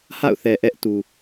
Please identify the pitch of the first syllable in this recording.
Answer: falling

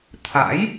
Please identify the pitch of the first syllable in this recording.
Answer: rising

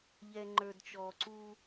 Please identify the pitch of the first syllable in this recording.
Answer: low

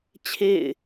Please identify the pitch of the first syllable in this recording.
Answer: falling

